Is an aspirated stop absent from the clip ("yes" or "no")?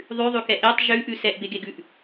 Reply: yes